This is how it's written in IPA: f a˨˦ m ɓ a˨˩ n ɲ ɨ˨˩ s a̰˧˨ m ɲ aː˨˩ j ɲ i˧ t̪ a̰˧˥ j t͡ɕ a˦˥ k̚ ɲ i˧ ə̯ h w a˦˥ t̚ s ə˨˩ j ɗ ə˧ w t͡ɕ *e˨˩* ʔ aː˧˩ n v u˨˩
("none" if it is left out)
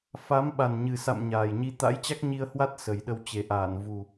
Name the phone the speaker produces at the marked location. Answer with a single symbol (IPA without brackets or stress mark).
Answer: e˨˩